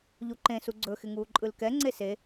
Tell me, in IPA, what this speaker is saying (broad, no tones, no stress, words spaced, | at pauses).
ʎuǃẽ suɡ͡ǀɵ xɪŋuːǃʼɯlkɛ ŋ͡ǀese